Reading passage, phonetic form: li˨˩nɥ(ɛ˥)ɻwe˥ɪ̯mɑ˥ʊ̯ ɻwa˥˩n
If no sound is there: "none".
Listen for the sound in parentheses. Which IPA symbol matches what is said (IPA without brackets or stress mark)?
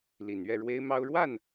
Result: ɛ˥˩